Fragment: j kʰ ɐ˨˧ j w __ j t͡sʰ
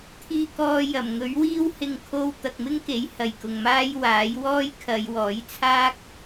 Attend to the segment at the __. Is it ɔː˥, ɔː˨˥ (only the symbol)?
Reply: ɔː˨˥